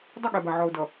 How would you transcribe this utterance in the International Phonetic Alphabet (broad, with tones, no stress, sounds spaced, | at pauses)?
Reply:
dˤ ʌ˦˨ ɠ ɛ˨ b a˨ ʕ ɔ˨ ʊ̯ d ʌ˨